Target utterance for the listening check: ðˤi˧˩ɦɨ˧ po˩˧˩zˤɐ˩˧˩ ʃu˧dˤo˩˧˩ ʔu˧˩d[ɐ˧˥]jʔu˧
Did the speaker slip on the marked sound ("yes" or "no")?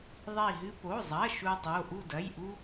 yes